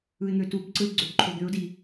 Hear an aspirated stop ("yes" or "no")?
yes